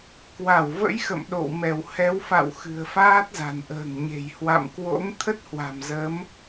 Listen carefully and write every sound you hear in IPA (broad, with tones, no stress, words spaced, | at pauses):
kwa˧˩wvə̰˧˥jxə̰˧˨m ɗo̰˧˨wmɛ˧˩w hɛ˨˦wfa̰˧˨w xɨ̤˨˩ə̯faː˦˥t̚za̤˨˩nʔə̤ː˨˩ŋ ɲe̤˨˩j hwa̰˧˨mkwo̰˧˥ŋ t̪ʰə˦˥t̚hwa̤˨˩mzə˨˦m